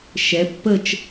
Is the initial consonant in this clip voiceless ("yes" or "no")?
yes